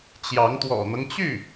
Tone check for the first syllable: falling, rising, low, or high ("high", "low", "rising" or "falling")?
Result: rising